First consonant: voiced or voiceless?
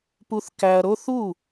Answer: voiceless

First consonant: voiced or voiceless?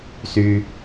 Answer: voiceless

